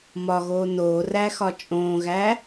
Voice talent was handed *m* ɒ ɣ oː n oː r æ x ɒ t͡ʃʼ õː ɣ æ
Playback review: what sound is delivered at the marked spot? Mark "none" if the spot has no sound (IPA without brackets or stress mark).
m